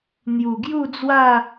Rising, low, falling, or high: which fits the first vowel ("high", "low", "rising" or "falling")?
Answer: low